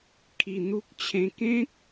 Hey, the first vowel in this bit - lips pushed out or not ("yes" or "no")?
no